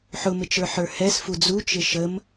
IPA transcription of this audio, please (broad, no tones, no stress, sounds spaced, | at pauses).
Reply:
ħ ʊ m ɪ t͡ʃ ə˞ ħ ə˞ h ɛ s f u d͡z u t͡ʃ ɪ ʃ ə m